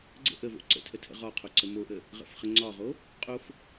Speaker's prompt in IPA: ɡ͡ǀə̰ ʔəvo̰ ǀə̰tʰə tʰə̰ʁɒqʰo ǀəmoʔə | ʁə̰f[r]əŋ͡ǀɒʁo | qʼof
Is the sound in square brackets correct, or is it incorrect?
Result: incorrect